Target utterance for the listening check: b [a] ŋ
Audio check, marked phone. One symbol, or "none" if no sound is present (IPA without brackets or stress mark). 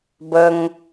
ə